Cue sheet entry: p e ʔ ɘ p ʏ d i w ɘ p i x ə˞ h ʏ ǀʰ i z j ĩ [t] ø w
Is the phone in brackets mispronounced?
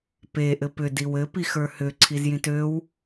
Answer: no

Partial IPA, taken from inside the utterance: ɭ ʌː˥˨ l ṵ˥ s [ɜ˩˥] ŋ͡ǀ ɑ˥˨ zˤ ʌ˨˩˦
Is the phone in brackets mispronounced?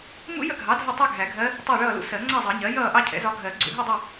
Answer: yes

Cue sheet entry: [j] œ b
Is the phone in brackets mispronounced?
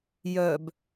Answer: no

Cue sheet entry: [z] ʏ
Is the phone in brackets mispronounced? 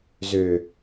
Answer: no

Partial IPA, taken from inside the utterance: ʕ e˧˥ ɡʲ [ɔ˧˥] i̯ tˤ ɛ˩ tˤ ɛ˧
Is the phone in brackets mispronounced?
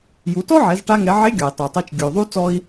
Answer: yes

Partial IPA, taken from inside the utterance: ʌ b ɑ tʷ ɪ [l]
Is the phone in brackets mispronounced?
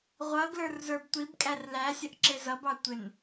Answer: yes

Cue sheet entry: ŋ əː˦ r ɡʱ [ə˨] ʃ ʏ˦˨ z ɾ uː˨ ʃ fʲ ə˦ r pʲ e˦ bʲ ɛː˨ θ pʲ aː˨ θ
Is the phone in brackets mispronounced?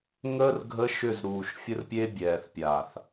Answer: yes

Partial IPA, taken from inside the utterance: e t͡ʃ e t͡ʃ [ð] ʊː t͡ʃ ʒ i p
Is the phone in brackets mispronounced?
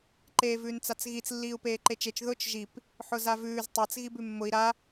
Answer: no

